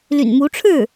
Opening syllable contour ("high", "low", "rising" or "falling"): low